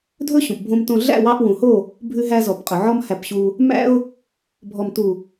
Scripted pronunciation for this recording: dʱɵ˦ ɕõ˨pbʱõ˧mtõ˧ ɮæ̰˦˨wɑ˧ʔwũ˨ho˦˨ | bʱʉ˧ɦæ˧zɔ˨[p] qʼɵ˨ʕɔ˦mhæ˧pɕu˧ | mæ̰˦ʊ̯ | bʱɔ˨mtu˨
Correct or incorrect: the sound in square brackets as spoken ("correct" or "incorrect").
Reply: correct